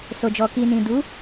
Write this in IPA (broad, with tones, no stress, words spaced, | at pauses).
so˨d͡ʒɔ˨ ki˨nĩ˨ du˨˦